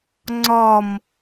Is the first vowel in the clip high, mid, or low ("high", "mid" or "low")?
low